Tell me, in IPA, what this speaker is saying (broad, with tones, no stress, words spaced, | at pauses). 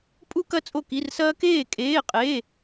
pʼu˥kɐ˥ t͡sʼo˥˨ki˧˥˧rsɐː˥ keː˥˨kʼeː˧˥˧qʼeː˧˥˧